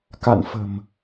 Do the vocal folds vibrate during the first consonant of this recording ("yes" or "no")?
no